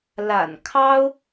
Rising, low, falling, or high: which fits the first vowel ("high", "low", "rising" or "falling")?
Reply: low